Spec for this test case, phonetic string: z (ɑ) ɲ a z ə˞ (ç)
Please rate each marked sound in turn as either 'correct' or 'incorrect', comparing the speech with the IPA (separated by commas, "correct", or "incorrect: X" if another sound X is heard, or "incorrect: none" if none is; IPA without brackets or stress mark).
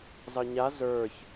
correct, correct